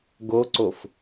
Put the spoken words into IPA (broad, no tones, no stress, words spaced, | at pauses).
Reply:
ɡoǀof